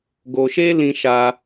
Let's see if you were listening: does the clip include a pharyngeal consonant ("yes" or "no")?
no